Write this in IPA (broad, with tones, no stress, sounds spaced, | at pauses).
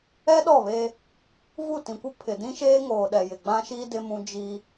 ɛ˦ ɗ ɔ˦˨ β eː˦ | v u˦˨ t ĩ˨ kʷ ɪ˦ pʰ ɪ˨ d ĩ˦ ʃ eː˦ ŋ oː˨ ɗ ɛ˨ j ɪ˨ ɡ͡b ã˦ ʃ iː˦ d ɪ˦ m ũ˦ d͡ʒ iː˦